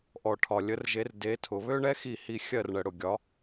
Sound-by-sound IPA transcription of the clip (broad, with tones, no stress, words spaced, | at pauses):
ʔɔ˩ʈʰɒ˩ lʲə˩˧rʒe˩˧r de˩˧tʰʊ˩ βø˦ɳɛ˦xi˧˩ hi˧˩ xʲɜ˧˩rɳə˩ɽʊ˩ɡʲɒ˩˧